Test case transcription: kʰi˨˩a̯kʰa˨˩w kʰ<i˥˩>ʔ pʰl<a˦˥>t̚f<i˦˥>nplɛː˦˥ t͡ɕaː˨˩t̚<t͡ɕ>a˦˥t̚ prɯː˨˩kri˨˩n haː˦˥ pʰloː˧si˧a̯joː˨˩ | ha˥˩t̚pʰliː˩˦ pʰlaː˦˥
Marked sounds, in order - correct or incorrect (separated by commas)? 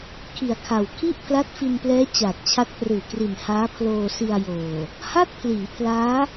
correct, correct, incorrect, incorrect